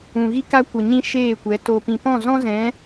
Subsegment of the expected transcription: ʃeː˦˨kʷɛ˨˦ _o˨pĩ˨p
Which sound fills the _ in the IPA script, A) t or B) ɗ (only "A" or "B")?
A